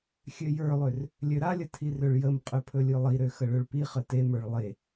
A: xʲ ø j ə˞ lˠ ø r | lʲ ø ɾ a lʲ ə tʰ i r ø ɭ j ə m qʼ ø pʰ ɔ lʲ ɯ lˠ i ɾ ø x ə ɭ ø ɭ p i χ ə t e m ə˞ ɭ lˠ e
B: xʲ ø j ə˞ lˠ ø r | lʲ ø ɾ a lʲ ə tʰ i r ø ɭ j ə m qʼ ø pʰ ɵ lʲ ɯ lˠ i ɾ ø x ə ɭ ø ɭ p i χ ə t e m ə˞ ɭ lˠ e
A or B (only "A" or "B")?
B